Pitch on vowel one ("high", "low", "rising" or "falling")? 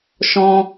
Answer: high